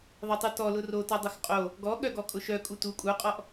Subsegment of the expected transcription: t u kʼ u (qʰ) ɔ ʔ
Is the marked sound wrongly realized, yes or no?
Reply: yes